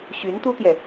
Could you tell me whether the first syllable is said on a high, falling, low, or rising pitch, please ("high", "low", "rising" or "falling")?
rising